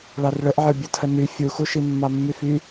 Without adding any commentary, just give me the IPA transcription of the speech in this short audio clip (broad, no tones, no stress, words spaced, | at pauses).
ɭɑrɭəʔʕə˞ bʲətʰəny fʲuxuʃi mːɑmːyfy